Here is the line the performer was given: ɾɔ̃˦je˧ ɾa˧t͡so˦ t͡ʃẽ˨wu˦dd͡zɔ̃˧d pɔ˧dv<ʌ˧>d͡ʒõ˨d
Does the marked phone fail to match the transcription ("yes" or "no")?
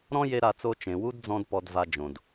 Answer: yes